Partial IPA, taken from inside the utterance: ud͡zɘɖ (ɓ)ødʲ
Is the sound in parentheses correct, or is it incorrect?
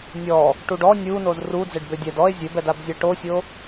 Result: incorrect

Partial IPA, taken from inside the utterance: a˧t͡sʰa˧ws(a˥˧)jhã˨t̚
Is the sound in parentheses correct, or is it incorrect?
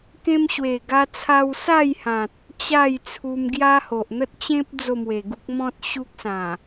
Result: correct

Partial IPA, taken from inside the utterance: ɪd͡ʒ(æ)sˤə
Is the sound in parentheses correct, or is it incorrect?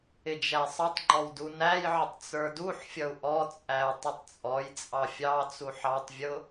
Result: correct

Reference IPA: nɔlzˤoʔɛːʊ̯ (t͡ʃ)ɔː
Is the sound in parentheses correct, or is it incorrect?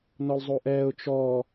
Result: correct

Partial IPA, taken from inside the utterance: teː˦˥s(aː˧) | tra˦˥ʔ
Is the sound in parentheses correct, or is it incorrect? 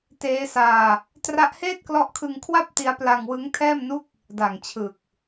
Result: correct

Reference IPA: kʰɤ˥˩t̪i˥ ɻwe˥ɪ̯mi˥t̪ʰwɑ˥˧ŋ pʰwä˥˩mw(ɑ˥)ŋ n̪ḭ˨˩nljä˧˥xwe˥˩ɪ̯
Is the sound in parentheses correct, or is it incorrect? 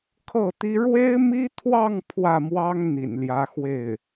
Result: correct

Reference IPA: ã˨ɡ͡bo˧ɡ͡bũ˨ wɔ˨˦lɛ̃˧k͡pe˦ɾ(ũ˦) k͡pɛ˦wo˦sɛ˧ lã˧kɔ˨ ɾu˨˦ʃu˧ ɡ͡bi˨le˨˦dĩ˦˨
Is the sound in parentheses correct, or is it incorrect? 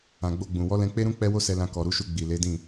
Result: correct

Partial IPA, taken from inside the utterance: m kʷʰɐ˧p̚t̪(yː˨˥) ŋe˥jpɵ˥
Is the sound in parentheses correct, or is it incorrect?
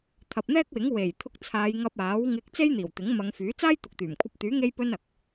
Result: correct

